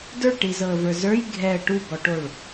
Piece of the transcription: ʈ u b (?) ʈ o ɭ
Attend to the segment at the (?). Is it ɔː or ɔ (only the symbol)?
ɔ